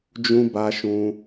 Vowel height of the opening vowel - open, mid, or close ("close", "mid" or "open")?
close